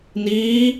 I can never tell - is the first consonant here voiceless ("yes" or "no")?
no